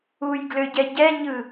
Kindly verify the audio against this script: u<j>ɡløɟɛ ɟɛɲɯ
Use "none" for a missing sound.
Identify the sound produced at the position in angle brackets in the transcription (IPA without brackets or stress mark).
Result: j